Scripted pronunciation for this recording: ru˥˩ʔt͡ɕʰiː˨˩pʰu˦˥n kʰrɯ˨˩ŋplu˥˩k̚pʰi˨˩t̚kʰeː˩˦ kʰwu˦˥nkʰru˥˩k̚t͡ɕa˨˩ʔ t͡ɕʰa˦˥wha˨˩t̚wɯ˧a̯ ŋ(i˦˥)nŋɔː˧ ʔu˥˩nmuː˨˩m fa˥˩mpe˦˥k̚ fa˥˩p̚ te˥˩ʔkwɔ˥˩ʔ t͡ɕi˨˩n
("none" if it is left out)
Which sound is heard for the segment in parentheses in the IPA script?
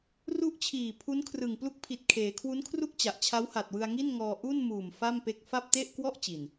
i˥˩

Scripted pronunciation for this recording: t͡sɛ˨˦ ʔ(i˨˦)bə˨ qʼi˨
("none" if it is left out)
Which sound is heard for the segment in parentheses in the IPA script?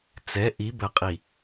i˨˦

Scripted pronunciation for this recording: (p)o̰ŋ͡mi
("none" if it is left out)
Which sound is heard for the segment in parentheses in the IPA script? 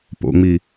p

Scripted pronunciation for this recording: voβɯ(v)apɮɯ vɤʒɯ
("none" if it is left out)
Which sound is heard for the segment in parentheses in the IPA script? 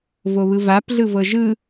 v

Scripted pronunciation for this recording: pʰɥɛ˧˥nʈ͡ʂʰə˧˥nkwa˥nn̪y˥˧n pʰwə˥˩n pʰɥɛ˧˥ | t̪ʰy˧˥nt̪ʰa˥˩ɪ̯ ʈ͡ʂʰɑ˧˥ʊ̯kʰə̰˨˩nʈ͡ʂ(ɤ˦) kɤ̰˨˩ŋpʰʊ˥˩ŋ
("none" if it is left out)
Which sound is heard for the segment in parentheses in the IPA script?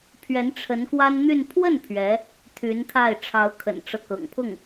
ɤ˦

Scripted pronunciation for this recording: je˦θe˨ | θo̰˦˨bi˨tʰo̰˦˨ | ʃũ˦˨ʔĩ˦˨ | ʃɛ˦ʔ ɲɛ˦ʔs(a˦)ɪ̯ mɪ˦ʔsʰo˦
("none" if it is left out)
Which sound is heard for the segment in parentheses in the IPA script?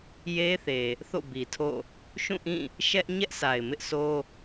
a˨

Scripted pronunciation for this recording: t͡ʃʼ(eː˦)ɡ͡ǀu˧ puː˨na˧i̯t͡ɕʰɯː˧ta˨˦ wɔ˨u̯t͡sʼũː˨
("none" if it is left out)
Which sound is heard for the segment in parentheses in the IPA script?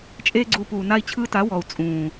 eː˦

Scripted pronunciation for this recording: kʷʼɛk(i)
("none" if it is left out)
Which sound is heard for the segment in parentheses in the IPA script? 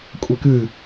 ɨ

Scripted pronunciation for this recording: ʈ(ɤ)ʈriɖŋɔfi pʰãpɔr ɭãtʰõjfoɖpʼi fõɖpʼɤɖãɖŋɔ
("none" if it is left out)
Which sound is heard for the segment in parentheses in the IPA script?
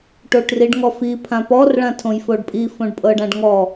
o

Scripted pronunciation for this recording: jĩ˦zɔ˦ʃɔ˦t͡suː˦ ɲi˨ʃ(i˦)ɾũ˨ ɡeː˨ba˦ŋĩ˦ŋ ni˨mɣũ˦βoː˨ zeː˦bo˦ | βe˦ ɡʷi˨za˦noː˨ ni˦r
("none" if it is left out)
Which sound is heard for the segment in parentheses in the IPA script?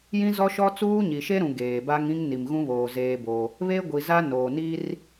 e˦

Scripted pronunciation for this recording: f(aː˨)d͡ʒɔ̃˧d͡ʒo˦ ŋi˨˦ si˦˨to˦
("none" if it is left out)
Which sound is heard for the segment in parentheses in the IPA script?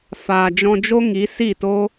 aː˨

